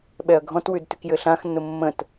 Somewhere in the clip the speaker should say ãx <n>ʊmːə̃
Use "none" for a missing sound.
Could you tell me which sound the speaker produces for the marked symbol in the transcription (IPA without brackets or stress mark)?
n